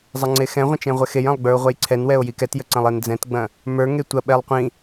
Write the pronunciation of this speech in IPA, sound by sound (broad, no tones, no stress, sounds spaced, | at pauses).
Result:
zˤ ɐ ŋ͡ǀ e x ɛ̃ ʁʷ ə̃ t͡ʃ ɛ̃ ʁʷ ɛ x e j ɐ̃ lˠ ɡ͡b ə˞ o̯ ʁʷ ɛ j ǀʰ ɛ n w ɛ o̯ j i k ɛ t j ə ǀ ɐ̃ lˠ e n d͡z ɛ̃ t ɡ͡b ɐ̃ | m ə˞ ŋ e tʷ ɐ ɓ ɛ lˠ qʷ ĩ